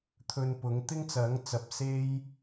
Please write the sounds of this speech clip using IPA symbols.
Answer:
t̪ʰ ɵ˧ n p ʊ˨˥ ŋ t̪ ɪ˥ ŋ t͡s ɐ˨˥ ŋ t͡s ɐ˨ p̚ s e˥ j

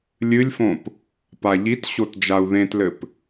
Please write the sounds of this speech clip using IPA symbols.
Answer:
lʲ ɨ lʲ f õ p | p a ʎ i t ɕ o t d͡ʒ a u̯ ð ẽ t l ɘ p

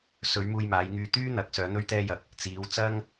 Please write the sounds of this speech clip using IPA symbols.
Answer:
s ɵ˨˧ ɥ m uː˧ j m aː˨˧ j ŋ yː˧ t̪ yː˥ n̪ ɐ˨˥ k̚ s œː˨˧ n̪ ɵ˥ ɥ t̪ ɛː˥ j ɐ˧ k̚ | t͡s iː˨˧ w t͡s ɐ˥ ŋ

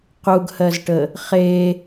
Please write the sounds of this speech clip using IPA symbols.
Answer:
q u ɡ h ɜ z ʈ ə | χ e

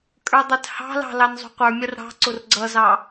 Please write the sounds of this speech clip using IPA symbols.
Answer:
kʼ ə˞ dˤ ɛ t h ɑ̤ l ɑ̤ l ɑ n zˤ ṳ qʷ ə˞ mʲ ʌ r ɽ ɑ̤ ǀ ʊ r ɡ͡ǀ ʌ z ɑ

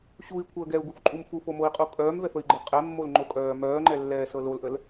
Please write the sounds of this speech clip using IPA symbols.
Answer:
ɕ u i̯ kʷʰ əː ɡ ɛ u̯ ɡ u f ǃʼ u m f u f o m o i̯ qʼ u kʼ œː m v ɛ f ə i̯ ɡ͡ǃ ɤ qʼ ɛ mː o l ŋ͡ǃ o kʼ œː m œː ŋ͡ǃ ɛ lː ɛː s ɤ l o l ʔ ə l

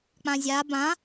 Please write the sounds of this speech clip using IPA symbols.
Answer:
k͡p ã zʲ a b ã

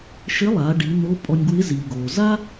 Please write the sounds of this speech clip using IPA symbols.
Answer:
ʃ ɪ˧˥ lˠ a˩˧ ɖ i˩˧ n̪ o˧˥ pʼ ɔ˧ nʲ ɡ w ɪ˧˥ z i˩ ɡ o˩ z a˥

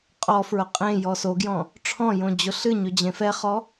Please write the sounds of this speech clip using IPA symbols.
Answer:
qʼ ɔ f ɹ ʊ qʼ ẽ j ɔ s o ɡ j ɔ̃ | ʈ͡ʂʰ ɔ̃ j õ d͡ʑ ʊ ɬ ɨ ɲ ɵ d͡ʑ ẽ f ɛ χ ɔ

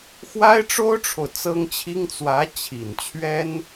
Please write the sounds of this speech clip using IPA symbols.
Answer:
x w a˥ ɪ̯ ʈ͡ʂ o˥ ʊ̯ ʈ͡ʂʰ o˨ ʊ̯ t͡s ɤ˥ ŋ t͡ɕʰ i˥ ŋ t͡s w ä˧˥ t͡ɕʰ i˨˩ n t͡ɕʰ ɥ ɛ˥ n

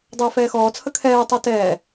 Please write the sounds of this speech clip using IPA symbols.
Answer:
dˤ əː f ɛː x ɔː t͡sʰ ə kʰ ɛː tˤ œ t ɛː

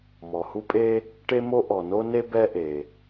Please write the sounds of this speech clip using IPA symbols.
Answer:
m ɔ˩ h u˥ pʼ e˥ | ʈ e˥ m o˥ ʔ ɔ˩ n o˥ n e˥ b ɛ˥ ʔ e˩

